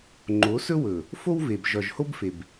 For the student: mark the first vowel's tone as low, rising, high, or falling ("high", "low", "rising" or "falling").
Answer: rising